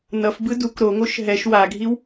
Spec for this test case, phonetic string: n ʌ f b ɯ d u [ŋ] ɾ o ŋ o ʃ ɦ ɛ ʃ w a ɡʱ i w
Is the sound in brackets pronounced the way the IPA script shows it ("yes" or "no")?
no